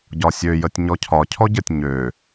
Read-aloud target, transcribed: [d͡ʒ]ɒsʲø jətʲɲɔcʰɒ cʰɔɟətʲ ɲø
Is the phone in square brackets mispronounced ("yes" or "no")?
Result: yes